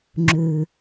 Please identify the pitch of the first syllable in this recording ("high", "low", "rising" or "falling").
low